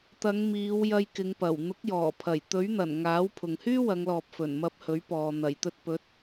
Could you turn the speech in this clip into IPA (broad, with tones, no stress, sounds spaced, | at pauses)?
t̪ ɐ˨˧ ŋ m iː˨˧ w j ɐ˧ j k ɪ˨˧ ŋ p ɐ˨˩ w n̪ ʊ˨˥ k̚ j ɔː˨˩ pʰ ɐ˨˩ j t̪ ɵ˨˥ ɥ n̪ ɐ˨˩ n ŋ aː˨˥ w pʰ ʊ˨ ŋ h yː˥ w ɐ˨˧ ŋ l ɔː˨ p̚ f ɵ˨˩ n m ɐ˧ p̚ h ɵ˨˥ ɥ p ɔː˨ n̪ ɐ˨˩ j t̪ ɵ˧ t̚ p ɵ˨˥ t̚